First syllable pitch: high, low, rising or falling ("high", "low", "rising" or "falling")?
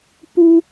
high